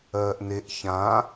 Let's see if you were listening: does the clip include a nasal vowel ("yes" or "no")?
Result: yes